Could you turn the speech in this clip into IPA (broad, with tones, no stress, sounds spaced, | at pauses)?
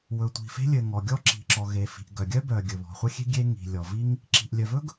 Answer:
w ɵ˩ tʷ i̤˩ f e̤˥ lʲ ɘ˩ ŋ ɔ˩ ɡʲ ɔ˥ ǁ i̤˩ ǁ ɔ˩ ɣ e˩ f i̤˩ ʔ ɡ œ˩ ɡʲ œ˥ b œ˩ ɡʲ ɵ˩ β ɔ̤˩ χʷ ɘ˥ xʲ e̤˥ ɡʲ e˥ ŋ i̤˩ lʲ ɔ˩ v i˥ ŋ | ǁ i̤˩ ʔ lʲ œ˩ v ɵ˥ ɡ